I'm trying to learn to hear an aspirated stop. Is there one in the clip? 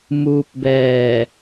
no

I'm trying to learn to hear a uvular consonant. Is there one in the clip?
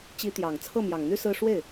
no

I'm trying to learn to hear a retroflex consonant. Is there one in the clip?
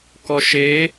no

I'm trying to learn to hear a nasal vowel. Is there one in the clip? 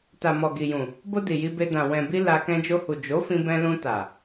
yes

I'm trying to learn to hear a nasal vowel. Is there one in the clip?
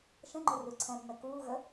yes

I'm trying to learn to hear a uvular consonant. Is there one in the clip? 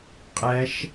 yes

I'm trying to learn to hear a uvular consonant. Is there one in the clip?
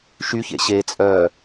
no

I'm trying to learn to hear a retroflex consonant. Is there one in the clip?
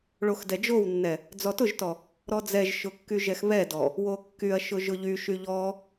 yes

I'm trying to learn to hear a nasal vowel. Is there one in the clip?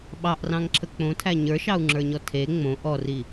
yes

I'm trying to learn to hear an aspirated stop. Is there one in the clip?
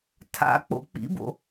yes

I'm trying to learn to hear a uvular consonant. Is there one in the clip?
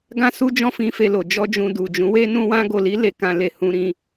no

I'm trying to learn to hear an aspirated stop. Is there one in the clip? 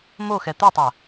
no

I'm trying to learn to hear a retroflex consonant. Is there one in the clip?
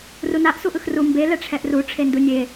yes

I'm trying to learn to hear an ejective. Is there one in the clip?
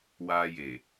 no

